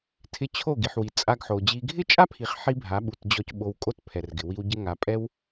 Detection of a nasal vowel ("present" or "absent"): absent